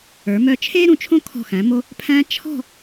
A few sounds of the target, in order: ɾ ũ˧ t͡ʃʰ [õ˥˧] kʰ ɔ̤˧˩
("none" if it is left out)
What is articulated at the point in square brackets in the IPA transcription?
õ˥˧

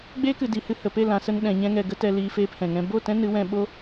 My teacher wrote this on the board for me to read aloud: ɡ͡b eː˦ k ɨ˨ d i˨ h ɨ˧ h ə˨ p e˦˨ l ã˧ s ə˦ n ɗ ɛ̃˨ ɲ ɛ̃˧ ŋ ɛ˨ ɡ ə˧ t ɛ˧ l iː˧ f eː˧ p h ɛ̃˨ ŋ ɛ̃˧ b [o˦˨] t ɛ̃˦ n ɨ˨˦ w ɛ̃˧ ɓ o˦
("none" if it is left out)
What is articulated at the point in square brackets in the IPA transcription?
o˦˨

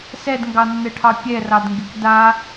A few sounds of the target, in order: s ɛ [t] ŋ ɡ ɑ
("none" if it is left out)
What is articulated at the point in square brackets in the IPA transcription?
d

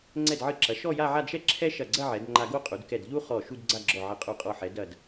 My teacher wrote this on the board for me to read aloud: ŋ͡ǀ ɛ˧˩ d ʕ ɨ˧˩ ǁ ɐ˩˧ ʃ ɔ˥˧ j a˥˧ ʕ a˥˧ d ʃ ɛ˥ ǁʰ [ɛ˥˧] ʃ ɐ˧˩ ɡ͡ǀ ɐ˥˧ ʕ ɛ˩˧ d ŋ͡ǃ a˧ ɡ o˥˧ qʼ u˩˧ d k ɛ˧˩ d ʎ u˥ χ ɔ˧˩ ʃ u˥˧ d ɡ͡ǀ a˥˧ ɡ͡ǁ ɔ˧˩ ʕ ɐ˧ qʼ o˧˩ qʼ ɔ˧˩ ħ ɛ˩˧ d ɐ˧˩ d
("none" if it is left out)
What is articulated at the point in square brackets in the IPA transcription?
ɛ˥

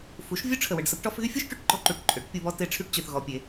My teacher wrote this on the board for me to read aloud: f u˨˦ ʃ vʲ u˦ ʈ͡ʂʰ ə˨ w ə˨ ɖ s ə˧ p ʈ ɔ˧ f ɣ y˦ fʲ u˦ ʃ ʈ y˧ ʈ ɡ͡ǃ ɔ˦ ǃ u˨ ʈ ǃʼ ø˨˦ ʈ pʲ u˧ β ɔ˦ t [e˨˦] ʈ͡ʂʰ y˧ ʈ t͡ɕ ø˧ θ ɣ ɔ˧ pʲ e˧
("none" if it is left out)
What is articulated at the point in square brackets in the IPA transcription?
e˨˦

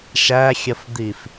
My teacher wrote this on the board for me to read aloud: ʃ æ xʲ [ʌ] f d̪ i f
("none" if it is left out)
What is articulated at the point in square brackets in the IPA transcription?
ʌ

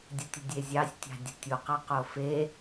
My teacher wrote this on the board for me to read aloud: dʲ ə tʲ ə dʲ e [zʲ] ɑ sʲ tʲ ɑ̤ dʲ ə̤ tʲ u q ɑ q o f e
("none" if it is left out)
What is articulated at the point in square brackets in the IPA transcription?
zʲ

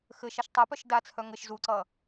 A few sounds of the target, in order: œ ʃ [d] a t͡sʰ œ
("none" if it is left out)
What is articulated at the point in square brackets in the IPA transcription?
d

